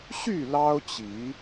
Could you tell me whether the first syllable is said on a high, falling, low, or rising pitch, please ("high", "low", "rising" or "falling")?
falling